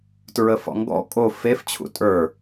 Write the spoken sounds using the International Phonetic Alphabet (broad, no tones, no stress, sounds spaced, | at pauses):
t ɹ ə f ɔ̰ ŋ ɡ ɔ̰ kʼ o f e f t͡ɕʰ ṵ tʼ ə˞